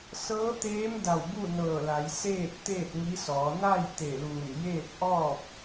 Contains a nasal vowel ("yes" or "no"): no